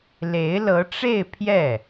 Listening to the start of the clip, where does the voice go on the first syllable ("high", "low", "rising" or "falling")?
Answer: rising